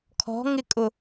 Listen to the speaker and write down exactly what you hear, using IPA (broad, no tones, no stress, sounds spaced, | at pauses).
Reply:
kʰ ɔ̤ ŋ ɪ kʼ ʊ